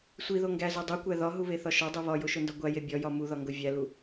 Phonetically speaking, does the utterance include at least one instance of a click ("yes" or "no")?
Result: no